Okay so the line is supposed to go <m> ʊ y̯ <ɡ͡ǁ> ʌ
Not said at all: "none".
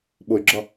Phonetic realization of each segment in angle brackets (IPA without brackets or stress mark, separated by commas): ɓ, ɡ͡ǁ